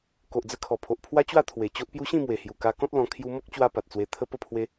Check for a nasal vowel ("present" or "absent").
present